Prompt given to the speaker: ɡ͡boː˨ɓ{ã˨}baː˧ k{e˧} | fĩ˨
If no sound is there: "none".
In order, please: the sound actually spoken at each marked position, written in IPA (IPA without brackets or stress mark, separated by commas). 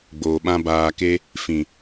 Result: ã˦, e˦